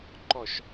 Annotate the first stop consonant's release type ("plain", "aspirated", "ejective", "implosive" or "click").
click